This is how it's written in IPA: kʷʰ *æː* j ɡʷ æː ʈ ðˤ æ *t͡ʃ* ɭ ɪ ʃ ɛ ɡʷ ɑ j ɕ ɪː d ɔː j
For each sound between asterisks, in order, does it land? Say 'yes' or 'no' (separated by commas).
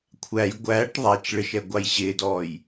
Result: no, yes